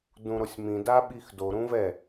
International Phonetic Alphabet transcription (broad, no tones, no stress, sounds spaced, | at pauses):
d ũ ɾ o sʲ m ĩ d a ɓ i x d o ɾ ũ v ɛ